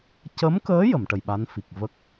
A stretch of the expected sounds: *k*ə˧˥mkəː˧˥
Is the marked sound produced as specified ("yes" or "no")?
no